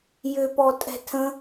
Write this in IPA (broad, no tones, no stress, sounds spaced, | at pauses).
j ʏ p ɔ tʼ ɛ̤ tʰ ə̃